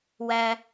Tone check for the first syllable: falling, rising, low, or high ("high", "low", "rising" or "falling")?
high